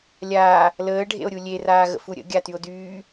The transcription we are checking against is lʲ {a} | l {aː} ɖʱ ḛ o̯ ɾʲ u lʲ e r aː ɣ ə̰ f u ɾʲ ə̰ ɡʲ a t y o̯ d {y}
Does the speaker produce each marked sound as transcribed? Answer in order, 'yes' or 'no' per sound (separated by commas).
no, no, no